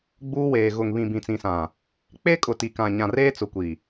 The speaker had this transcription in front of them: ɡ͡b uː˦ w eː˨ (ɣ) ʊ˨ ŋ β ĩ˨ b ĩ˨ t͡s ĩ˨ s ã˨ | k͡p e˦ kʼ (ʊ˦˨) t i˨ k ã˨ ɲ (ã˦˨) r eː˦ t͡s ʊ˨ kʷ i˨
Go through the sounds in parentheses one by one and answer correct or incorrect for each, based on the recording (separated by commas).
correct, incorrect, incorrect